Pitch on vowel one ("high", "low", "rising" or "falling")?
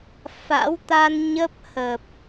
rising